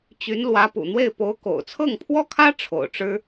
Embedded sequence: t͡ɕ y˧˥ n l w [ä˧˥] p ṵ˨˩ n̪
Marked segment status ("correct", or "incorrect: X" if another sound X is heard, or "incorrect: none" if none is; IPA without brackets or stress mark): correct